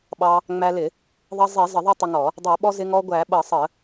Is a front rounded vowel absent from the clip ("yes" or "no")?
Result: yes